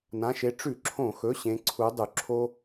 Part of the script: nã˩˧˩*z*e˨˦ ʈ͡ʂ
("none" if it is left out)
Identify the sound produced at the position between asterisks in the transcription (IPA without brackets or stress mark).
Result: ʃ